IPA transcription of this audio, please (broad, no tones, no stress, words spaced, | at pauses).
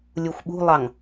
lʲuxʷɓṳlˠɑŋ